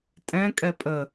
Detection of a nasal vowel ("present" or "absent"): present